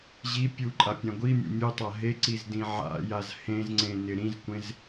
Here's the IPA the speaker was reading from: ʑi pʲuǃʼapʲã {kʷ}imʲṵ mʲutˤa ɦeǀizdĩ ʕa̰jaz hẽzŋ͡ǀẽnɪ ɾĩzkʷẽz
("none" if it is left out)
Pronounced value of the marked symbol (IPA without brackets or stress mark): ɡʷ